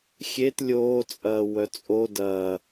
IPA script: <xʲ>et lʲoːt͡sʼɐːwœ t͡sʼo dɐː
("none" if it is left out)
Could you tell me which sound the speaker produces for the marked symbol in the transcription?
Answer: xʲ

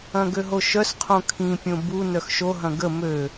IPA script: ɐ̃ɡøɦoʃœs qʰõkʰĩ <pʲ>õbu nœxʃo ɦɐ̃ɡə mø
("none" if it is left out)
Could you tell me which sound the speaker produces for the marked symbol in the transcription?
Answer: pʲ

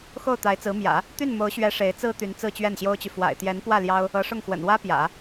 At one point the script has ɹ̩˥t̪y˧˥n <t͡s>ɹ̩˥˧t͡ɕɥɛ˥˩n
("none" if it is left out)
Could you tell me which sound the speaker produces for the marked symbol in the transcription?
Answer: t͡s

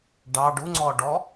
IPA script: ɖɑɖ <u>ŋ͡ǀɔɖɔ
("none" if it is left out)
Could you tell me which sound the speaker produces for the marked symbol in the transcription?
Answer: u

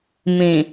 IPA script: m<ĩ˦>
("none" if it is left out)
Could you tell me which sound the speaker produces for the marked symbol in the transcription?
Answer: ĩ˨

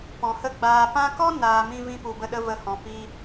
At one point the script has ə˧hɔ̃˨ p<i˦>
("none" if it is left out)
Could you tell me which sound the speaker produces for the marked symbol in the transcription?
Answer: i˧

